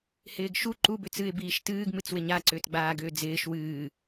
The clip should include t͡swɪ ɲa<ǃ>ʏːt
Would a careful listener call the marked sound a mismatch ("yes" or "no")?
yes